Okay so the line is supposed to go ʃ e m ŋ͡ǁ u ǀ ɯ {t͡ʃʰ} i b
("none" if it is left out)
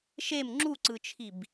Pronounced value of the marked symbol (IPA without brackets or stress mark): t͡ʃʰ